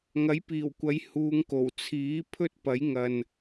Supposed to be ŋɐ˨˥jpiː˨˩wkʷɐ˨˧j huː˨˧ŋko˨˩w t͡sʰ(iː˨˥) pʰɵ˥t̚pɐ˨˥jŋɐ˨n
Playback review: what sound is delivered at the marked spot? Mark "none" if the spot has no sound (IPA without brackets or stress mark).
iː˨˥